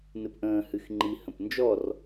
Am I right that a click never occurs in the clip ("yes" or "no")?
no